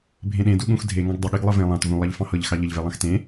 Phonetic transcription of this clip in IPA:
bʱ ẽ ɗ ẽ d u ɠ ũ x dʱ e ŋ ɑ̃ ɡ dˤ ə ɠ i ɡ lˠ ɤ v ẽ lˠ ɑ̃ t v ũ lˠ ɑ ʎ f ɑ̃ h ɤ ʎ x ɑ ʎ ə ʎ v e lˠ ɑ̃ x t ẽ

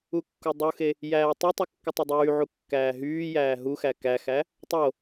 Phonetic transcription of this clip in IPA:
u kː u dˤ u x e | j æː tˤ y tˤ u kː ɯ tˤ ø dˤ yː ʕ u kː æː ɦ yː j æː ɦ u x æ k æ x æ | tˤ o

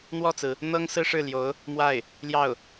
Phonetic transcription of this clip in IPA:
n̪ w ɔ˥˩ t͡s ɹ̩˩ | n̪ ɤ˥ ŋ s ɹ̩˥ ʂ ɻ̩˥˩ l j o˧˥ ʊ̯ | m w a˥˩ ɪ̯ | l j ɑ˥˩ ʊ̯

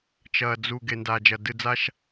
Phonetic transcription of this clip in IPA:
t͡ʃ ɐː˨ d͡z u˨ ɡ e˨ n d aː˨ d͡ʒ ɐ˨ d ɨ˨ d͡z a˦ ʃ

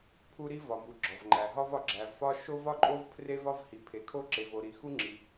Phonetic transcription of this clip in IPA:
pʰ u˥ ɾ i˥ v ɒ˩ m u˩ ɡ͡ǁ ɒ˩ v ŋ͡ǃ æ˩ ɦ ɒ˥ v ɒ˩ ɡ͡ǁ æ˩ v f ɒ˥ ʃ o˥ v ɒ˥ ǃʼ o˥ v pʰ r e˥ v ɒ˥ v h i˩ pʰ e˩ kʰ o˥ ǁ e˩ v o˩ ɾ i˩ x u˥ ŋ͡ǁ i˩

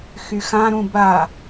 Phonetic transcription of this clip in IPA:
x y x ã ɾ ũ b a

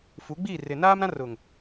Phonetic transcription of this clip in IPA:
f u˨˦ ɡ͡b iː˦˨ r ɪ˨ n aː˦ m ɾ ã˦ r ʊ˨ ŋ

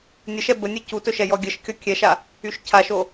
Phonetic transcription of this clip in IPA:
nʲ ə ʃ ɛ b ə nʲ ɛ c u t ɵ ʃ ɛ j ɔ ɡʲ ə ʃ kʲ ɔ kʲ ɛ ʃ a | y ʃ cʰ a ʃ o

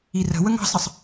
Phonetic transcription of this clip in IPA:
i r ə̤ w ə ŋ ɑ̤ s ə sˤ

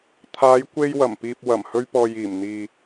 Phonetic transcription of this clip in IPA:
t̪ʰ aː˨˧ j kʷ e˧ j w ɐ˨˩ m p iː˨ p̚ w ɐ˨˩ m h ɵ˧ ɥ p ɔː˨ j iː˨˩ m n̪ iː˨

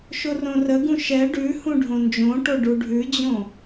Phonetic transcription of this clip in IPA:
ʃ o r õ r ə ɡ ũ ʃ ɛ ɖ ʉ h ũ ɖʱ õ n d͡ʒ õ ʈ o ɖ u ɖʱ ʉ d͡ʑ õ

